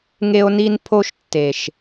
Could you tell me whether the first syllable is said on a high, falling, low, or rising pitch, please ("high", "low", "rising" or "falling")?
high